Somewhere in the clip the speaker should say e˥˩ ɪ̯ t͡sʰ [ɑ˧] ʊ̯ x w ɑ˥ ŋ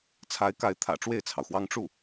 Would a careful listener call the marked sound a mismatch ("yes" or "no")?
yes